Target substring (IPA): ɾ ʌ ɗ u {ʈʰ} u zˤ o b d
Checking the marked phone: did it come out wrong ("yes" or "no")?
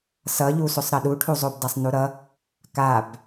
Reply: no